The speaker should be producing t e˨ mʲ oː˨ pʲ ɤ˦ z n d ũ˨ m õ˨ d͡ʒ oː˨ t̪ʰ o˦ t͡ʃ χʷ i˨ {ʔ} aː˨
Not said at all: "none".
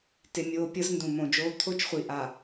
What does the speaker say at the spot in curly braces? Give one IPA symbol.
ʔ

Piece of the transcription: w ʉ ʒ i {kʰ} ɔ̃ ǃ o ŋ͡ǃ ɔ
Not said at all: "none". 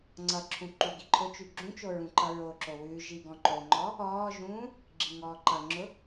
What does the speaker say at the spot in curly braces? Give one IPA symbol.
ɡ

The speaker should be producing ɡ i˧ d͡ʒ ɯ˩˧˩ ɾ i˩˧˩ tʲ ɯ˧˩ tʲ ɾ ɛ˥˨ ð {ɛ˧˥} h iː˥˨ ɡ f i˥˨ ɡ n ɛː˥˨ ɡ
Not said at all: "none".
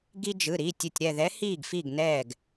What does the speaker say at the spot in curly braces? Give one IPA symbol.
ɛ˧˥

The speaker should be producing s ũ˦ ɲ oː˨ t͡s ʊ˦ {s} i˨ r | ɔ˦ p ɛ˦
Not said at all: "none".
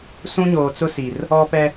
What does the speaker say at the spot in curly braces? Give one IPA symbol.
s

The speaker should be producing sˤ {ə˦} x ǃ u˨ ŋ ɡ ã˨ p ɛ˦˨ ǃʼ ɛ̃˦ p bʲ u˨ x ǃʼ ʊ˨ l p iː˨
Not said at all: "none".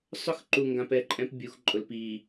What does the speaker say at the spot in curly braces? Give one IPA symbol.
ʊ˦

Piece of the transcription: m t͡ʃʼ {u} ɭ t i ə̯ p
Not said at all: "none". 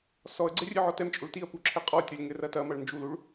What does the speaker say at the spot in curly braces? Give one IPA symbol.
u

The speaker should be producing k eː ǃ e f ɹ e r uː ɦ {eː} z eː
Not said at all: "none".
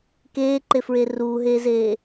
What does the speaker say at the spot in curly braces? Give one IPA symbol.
eː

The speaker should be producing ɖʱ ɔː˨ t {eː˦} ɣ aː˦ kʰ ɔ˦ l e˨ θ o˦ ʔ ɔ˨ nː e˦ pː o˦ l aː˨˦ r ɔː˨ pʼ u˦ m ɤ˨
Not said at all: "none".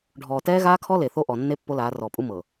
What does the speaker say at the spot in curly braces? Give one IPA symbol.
ɛː˦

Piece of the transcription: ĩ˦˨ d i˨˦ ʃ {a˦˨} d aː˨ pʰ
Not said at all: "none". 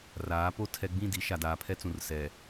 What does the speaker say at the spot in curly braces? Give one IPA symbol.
a˨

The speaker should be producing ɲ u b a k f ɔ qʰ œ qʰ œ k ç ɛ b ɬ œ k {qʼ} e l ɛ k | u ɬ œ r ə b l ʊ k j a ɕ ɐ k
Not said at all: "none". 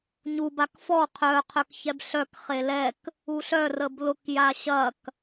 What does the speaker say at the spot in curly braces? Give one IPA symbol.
χ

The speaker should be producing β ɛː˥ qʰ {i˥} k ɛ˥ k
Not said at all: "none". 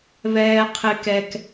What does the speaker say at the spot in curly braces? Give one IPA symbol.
ɪ˥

